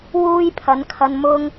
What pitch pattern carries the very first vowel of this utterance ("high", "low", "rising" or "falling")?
high